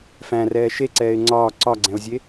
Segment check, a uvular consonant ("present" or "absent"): absent